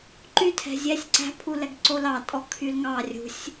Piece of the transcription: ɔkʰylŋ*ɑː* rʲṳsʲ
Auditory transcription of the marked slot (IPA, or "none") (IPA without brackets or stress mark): ɑ